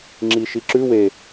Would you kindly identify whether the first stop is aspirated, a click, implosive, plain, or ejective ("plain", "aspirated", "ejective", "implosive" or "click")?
click